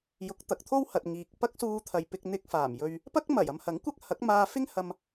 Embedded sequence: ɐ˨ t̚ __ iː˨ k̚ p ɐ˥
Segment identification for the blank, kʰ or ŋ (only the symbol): ŋ